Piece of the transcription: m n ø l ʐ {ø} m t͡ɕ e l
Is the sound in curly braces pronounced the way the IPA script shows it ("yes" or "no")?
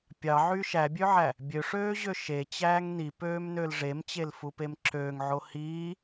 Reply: no